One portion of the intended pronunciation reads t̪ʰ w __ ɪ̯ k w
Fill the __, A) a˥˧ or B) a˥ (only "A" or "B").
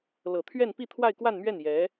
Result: A